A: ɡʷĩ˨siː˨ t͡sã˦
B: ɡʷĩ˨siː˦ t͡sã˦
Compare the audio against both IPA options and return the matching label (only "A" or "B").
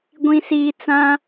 A